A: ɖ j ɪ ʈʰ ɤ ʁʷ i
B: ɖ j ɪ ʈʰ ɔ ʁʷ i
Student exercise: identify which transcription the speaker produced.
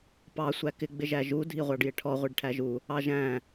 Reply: B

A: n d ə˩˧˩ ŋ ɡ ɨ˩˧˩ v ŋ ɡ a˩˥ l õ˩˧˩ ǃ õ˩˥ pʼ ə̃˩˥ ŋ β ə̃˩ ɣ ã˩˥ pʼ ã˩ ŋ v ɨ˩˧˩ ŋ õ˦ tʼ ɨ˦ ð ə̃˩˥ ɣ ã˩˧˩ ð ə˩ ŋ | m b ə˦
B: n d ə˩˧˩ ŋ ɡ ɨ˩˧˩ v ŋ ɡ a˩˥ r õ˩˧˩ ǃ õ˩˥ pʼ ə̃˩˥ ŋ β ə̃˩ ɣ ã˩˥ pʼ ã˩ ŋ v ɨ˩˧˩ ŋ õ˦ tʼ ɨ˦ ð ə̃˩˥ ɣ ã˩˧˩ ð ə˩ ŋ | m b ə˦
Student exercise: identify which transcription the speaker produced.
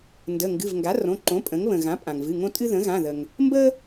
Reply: B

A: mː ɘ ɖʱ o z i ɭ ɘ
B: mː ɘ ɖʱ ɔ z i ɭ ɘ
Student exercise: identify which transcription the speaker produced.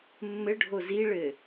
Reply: A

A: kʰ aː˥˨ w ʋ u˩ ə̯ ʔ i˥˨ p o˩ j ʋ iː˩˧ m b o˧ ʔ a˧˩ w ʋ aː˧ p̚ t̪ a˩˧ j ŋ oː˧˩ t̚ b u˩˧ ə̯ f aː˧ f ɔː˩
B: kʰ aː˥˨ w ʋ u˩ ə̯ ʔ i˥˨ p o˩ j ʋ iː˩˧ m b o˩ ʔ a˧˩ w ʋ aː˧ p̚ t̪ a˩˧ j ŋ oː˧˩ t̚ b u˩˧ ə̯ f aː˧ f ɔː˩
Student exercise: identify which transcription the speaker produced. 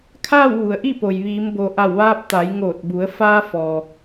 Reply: B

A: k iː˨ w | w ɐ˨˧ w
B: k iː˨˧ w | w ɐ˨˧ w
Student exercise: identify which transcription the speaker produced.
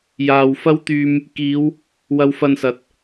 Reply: B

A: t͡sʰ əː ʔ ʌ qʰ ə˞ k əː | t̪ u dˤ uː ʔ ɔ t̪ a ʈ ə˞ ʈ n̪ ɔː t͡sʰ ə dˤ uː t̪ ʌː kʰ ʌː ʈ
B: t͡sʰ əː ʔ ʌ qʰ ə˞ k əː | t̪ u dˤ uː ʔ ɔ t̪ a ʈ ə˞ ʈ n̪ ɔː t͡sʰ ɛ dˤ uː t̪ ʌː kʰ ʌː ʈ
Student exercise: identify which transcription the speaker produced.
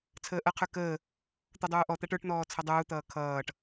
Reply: A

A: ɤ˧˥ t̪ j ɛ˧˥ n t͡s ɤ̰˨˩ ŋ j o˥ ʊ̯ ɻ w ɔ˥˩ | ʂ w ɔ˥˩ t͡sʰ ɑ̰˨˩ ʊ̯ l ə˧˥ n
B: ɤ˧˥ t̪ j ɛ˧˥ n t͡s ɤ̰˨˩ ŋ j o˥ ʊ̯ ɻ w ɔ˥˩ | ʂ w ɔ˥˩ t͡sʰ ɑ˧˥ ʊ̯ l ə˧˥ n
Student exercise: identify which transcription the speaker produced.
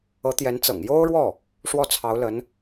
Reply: B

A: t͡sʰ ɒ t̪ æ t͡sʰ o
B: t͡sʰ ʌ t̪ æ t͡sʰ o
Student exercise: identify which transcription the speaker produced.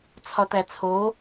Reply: A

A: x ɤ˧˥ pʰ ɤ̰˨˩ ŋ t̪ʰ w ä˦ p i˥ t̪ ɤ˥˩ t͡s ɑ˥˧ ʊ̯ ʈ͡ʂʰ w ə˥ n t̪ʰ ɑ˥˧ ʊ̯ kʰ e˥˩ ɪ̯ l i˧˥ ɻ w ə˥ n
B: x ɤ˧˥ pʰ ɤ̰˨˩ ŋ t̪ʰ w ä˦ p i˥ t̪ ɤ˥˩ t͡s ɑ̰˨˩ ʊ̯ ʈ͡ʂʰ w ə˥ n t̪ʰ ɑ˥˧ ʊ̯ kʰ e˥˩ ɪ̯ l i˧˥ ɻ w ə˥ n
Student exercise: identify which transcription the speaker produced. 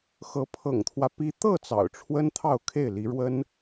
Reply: B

